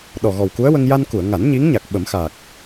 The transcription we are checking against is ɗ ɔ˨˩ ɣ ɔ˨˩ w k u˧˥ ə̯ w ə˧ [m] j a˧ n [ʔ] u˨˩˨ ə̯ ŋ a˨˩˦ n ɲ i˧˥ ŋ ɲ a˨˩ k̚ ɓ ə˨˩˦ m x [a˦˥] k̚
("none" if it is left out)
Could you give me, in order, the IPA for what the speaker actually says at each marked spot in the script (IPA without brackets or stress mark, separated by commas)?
ŋ, k, a˨˩